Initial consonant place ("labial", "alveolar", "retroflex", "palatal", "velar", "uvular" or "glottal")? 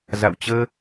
alveolar